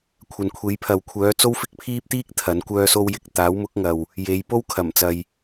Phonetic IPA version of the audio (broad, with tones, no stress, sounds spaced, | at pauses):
kʷʰ ɐ˨ n kʷʰ e˨˥ j pʰ ɐ˨ w kʷʰ œː˨˥ t͡s o˥ w f ɪ˥ k̚ pʰ iː˥ p̚ t̪ iː˥ k̚ t̪ʰ ɐ˨˥ n kʷ œː˥ s o˥ w j ɪ˨ k̚ t̪ aː˨˥ w m ʊ˨˥ k̚ ŋ ɐ˨ w | j e˨˧ j p o˥ w kʰ ɐ˨˩ m t͡s ɐ˨ j